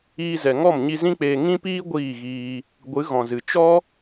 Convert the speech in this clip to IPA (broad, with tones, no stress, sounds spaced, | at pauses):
iː˧ z ɛ˨ ŋ ɔ˦˨ m ɲ i˧ z ĩ˦ k͡p eː˧ ŋ ĩ˦ p iː˦ ɡʷ iː˦˨ ɣ iː˧ | ɡʷ ɨ˨˦ ɣ ɔ̃˨ z ɨ˨ t͡ʃ ɔ˦